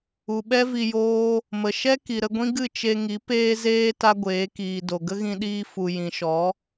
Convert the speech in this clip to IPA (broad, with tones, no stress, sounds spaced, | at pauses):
u˨ ɓ ɛ˦ v i˧ j oː˦ | m ə˨ ʃ ɛ˦ k i˨ ɾ ə˧ ɡʷ ĩ˦ ɡ ɨ˦˨ t͡ʃ e˧ ŋ i˨˦ p eː˦ z eː˦ t a˦ ɡʷ eː˨˦ k iː˨ d o˨ ɡ ə˦ ɣ ĩ˧ ɗ iː˧ f u˨ j ĩ˨ ʃ ɔ˨˦